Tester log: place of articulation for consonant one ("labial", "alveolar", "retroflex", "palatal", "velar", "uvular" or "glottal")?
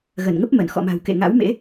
velar